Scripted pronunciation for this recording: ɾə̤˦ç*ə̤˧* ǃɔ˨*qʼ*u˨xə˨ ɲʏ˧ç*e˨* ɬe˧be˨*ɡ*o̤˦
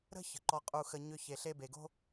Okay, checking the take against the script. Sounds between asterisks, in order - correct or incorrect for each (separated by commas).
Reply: incorrect, correct, correct, correct